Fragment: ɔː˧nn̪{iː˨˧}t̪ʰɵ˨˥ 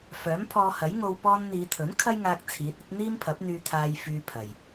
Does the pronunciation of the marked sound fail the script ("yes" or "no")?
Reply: no